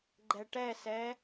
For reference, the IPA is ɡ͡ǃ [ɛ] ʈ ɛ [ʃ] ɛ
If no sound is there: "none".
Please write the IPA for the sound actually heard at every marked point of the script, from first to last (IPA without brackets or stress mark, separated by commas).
ɛ, s